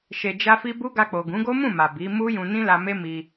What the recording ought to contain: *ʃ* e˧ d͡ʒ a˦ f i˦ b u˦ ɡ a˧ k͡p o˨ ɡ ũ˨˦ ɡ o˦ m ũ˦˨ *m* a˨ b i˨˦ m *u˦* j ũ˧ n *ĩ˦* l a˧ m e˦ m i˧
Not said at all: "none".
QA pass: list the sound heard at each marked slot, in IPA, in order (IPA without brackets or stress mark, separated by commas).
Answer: ʃ, m, u˦, ĩ˦